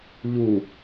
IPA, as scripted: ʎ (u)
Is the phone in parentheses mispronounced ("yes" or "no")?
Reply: no